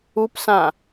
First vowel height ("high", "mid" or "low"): high